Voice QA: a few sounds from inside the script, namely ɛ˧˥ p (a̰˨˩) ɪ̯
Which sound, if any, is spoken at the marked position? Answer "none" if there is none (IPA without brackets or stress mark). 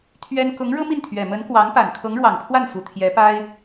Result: a˥